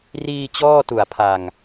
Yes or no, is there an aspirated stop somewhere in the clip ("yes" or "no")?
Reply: yes